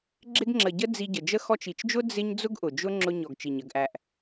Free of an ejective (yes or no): yes